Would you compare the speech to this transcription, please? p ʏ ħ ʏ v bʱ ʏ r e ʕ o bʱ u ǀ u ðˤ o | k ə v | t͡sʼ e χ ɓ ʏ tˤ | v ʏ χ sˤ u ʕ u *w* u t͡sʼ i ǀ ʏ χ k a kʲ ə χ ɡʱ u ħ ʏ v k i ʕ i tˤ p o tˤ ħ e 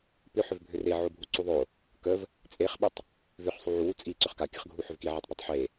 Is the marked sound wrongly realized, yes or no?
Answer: no